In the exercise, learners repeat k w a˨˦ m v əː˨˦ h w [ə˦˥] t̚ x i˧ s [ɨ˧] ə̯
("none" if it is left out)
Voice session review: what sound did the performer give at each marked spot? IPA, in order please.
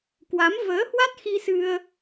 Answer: a˦˥, ɨ˧

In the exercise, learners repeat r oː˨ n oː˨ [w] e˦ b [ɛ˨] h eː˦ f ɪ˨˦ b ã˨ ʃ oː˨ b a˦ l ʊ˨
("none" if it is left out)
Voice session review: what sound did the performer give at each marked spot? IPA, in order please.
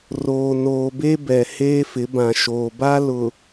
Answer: b, ɛ˨

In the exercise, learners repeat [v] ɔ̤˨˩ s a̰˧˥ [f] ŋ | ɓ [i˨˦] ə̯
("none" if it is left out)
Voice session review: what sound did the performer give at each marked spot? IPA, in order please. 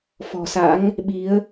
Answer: f, none, i˨˦

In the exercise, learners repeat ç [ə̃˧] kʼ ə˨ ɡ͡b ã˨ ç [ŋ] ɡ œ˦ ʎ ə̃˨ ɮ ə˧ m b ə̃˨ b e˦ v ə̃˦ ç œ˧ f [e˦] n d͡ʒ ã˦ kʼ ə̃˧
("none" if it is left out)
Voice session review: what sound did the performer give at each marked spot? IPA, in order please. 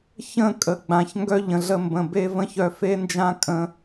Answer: ə̃˦˨, ŋ, e˦

